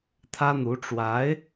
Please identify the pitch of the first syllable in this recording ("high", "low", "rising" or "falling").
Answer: high